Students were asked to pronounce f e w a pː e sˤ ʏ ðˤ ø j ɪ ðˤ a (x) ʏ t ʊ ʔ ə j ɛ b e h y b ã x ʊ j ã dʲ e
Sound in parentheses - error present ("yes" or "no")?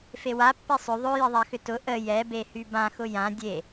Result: no